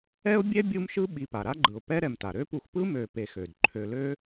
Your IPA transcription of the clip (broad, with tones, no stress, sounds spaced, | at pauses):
ɛ˦ ʊ̯ bʲ ɛ˥ bʲ u˦ m ʃ ɯ˦ ɓ i˨ p a˩ ɾ a˥ ɡ͡ǃ ɯ˩ ʊ̯ p ɛ˦ ɾ ɛ˨ m t a˩ ɾ ø˥ p u˨ x p ɯ˥ m ø˨ p e˨ x ø˩ d ǃʰ ø˨ l ø˦